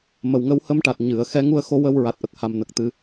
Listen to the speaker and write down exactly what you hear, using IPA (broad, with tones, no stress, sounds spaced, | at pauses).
m ə˨˩ w ŋ ə˧ w h ə˧ m ʈ a˨˩ t̚ ɲ ɨ˨˩˨ ə̯ x ɛ˧˥ ŋ u˧ ə̯ x o˧ w ə˧ w ɹ a˨˩ t̚ ʔ ə˨˩ k̚ h a˨˩ m n ə˨˩ k̚ t̪ ɨ˨˩˦